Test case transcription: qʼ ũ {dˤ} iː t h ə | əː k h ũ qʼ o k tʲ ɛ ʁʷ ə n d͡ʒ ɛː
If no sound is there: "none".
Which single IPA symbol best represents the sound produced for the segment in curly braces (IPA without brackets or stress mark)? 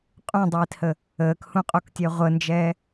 dˤ